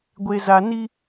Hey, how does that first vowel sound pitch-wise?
low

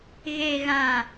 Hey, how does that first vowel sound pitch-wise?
low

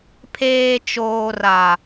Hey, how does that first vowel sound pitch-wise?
low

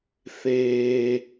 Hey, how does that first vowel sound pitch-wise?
high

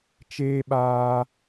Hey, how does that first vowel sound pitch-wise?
high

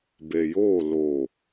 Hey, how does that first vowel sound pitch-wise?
low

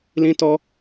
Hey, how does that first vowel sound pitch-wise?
high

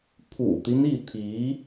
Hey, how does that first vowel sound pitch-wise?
low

